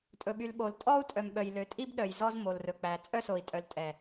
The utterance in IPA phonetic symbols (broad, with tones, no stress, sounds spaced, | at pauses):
tʼ ɵ˨ ɓ y˨ l ɓ o˨ l tʼ ɔ˦ u̯ tʼ œ˨ m ɓ œ˨ j l ø˨ tʼ i˦ b ɗ œ˨ j z ɔ˦ z m o˨ l r ɵ˨ k͡p æ˨ t͡sʼ œ˦ s o˨ i̯ tʼ œ˨ l tʼ ɛ˨